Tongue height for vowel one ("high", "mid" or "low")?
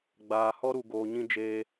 low